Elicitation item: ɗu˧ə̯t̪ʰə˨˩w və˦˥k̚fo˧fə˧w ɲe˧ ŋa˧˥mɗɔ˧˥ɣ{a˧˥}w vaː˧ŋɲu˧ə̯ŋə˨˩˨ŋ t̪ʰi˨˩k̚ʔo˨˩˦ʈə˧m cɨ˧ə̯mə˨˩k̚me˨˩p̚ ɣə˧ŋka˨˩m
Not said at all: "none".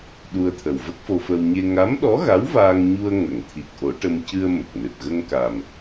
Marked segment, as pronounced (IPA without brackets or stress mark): a˧˥